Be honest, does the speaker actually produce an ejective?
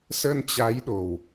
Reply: no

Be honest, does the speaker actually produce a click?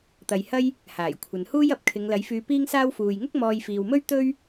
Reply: no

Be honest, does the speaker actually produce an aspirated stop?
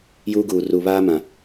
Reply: no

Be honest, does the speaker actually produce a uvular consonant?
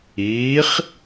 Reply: yes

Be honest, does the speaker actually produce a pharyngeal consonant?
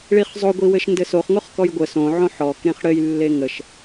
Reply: yes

